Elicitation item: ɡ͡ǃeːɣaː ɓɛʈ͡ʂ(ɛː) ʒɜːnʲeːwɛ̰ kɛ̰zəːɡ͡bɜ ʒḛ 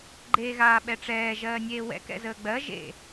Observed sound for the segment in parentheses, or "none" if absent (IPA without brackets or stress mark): ɛː